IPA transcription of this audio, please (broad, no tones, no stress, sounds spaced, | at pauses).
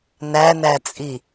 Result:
n æ n æ t͡sʼ i